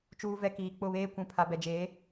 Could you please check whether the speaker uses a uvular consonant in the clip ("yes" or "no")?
no